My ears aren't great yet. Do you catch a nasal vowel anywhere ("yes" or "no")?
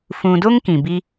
yes